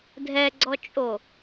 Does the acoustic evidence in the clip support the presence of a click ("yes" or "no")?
yes